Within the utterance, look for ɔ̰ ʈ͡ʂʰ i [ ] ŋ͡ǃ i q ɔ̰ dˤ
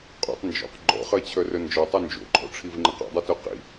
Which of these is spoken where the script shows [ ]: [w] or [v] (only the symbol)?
v